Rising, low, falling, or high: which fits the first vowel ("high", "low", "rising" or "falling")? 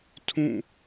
falling